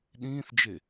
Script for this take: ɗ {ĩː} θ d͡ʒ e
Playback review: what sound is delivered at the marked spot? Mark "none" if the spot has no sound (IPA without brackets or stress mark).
ĩː